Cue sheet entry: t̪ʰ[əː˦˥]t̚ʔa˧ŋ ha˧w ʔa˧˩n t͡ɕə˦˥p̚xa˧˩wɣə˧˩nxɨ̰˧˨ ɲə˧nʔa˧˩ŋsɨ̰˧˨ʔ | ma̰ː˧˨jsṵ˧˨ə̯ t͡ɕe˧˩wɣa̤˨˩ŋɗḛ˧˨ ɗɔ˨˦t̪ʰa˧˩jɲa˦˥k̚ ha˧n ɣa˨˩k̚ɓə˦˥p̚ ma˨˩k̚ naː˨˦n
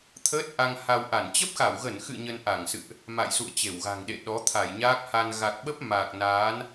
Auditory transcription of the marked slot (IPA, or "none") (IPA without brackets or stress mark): əː˦˥